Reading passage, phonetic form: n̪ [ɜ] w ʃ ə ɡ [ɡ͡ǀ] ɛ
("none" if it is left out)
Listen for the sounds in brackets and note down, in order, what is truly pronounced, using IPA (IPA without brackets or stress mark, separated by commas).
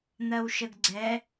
ɜ, ɡ͡ǀ